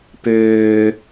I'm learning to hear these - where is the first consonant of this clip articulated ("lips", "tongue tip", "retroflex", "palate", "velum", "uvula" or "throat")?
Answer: lips